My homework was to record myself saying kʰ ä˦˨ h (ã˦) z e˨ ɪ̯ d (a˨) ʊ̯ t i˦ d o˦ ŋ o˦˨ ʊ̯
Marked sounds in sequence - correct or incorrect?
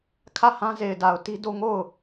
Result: correct, correct

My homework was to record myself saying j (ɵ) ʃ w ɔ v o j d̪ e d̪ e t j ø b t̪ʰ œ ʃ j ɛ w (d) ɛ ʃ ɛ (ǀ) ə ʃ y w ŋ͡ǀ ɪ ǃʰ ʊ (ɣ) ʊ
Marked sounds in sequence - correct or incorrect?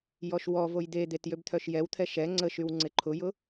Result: incorrect: ɔ, incorrect: t̪ʰ, incorrect: ŋ͡ǀ, incorrect: j

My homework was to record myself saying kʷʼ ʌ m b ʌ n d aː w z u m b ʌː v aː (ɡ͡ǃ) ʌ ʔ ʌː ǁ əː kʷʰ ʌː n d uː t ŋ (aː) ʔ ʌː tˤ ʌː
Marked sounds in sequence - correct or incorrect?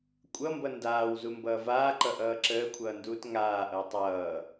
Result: incorrect: ǃ, correct

